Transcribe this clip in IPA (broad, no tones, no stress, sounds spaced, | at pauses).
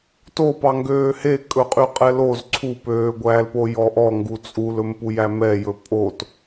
t o p ɑ ŋ ɡ øː h e kʼ ɵ qʼ y qʼ ɛ l o z ǀʰ u p øː ɡʷ æː l p o j ɔ ʔ ɔ ŋ ɡ u t͡sʼ u l ɵ m p u j æ m ɛ j ɵ pʼ o t